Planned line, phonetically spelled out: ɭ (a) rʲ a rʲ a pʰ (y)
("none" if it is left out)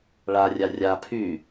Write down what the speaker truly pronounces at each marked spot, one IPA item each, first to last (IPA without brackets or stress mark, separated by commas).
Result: a, y